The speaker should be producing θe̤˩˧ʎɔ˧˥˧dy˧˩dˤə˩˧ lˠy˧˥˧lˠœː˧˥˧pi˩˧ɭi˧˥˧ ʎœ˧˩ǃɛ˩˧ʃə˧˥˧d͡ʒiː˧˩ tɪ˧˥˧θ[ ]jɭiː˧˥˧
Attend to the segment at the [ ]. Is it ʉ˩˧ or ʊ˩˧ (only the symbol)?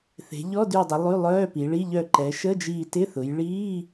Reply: ʊ˩˧